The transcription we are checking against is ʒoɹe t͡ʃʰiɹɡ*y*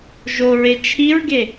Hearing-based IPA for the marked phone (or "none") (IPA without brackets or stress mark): e